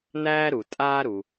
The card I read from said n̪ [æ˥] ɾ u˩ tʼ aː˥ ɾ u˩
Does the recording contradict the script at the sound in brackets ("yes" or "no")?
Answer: yes